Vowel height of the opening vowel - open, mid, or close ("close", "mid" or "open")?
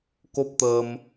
mid